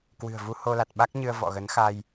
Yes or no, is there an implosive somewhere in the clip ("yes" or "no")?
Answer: yes